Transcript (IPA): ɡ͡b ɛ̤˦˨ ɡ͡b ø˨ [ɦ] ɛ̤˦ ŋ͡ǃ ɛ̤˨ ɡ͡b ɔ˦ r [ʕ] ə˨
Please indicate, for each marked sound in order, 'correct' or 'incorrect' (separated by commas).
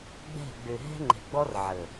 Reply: correct, correct